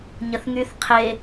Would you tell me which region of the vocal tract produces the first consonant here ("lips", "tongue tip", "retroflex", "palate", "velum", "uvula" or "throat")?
palate